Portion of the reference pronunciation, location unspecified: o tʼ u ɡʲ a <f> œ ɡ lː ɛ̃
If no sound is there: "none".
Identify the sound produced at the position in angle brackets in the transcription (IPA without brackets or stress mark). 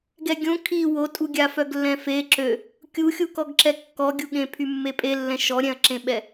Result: f